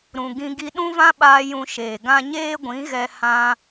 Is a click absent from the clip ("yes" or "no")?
yes